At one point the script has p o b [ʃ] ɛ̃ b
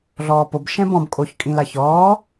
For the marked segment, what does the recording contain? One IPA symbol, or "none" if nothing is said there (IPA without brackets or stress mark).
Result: ʃ